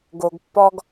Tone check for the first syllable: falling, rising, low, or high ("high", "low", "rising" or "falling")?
low